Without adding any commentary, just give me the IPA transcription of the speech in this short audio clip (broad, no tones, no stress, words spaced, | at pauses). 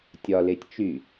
tʲɒletʲ t͡ʃy